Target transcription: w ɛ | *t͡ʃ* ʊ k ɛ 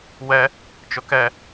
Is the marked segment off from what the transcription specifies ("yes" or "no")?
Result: no